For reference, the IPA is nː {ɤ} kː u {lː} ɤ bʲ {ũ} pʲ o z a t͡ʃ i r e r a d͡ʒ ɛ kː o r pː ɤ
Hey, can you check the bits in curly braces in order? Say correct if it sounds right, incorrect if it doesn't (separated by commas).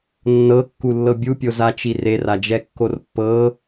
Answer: correct, correct, incorrect